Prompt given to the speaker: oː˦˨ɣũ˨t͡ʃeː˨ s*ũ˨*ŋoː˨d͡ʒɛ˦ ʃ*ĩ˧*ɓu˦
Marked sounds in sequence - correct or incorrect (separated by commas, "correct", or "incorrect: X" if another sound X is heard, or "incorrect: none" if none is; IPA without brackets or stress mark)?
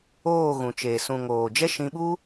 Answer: correct, correct